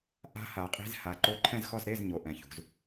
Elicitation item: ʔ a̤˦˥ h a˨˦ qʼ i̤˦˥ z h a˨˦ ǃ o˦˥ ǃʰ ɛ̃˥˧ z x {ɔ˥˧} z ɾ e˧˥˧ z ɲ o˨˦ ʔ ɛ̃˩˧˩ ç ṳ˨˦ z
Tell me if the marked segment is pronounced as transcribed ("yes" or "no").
yes